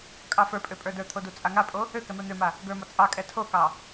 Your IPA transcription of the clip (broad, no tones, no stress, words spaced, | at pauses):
kʼɑfə˞pʼø pʼə˞də˞t̪ʰo dut͡sʼaŋapʼo | økɛ mə˞n̪øma | ɡə˞mɒ t͡sʼɑ kʼɛtʰokɑ